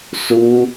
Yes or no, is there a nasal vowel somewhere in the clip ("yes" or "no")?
no